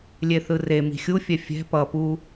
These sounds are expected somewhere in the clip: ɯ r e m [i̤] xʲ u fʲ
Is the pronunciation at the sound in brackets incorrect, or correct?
correct